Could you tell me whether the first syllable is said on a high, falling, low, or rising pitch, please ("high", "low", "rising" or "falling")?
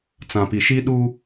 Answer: low